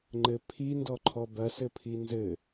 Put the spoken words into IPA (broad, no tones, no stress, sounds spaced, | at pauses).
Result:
ŋ͡ǃ ɘ pʰ i n d ɔ ǃʰ ɔ b ɐ s ɘ pʰ i n z ɘ